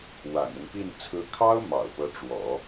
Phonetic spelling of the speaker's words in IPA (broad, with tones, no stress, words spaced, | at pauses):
wa̰˨˩nʊ˦ŋpi˥˩n t͡sʰɹ̩˧˥kʰɑ˥ʊ̯ mɑ̰˨˩ʊ̯pɤ˧˥ʈ͡ʂwɔ̰˨˩˦